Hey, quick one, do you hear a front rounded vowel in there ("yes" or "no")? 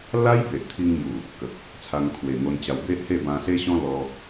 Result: no